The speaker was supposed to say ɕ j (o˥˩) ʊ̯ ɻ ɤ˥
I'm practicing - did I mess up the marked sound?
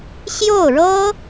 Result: no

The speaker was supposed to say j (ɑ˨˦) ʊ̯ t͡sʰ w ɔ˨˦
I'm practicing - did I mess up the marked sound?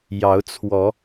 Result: no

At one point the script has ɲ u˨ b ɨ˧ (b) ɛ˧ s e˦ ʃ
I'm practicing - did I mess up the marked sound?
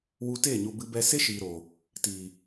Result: no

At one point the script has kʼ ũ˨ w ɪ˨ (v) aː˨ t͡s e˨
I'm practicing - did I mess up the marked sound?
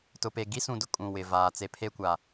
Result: no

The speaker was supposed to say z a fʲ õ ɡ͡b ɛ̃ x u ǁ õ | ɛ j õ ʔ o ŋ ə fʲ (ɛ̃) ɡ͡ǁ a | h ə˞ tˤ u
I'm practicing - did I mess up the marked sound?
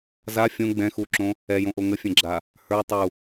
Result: no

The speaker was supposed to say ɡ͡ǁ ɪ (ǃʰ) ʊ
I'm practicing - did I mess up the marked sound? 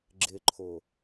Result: no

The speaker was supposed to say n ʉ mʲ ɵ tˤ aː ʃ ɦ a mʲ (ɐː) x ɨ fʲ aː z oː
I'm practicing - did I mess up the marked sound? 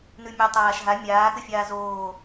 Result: yes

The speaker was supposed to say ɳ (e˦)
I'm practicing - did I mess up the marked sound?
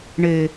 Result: no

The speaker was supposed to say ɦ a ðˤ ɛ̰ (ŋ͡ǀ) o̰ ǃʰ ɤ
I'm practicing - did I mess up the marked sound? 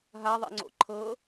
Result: no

